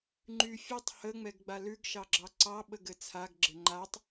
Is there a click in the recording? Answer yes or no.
yes